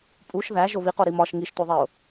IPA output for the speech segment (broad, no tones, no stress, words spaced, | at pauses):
pʼuʃ ðæ ʒoβiqo ɾimɒʃ ŋiʃtʷiðˤeʊ̯